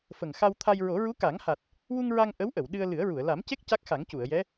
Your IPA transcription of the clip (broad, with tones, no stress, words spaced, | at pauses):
fə˨˩ŋxa˧wt̪ʰa˧j ɹo˨˩˦ɹu˧˥ka˨˩˦ŋha˨˩t̚ | wu˧ŋɹa˧ŋ ʔə˧˥wʔə˨˩˨w ɗɨ˧ə̯ lɨ˨˩˦ə̯ɹu˨˩˨ə̯ la˨˩˦mce˦˥k̚ ca˦˥k̚xa˨˩˦ŋcu˨˩˨ə̯jɛ˧˥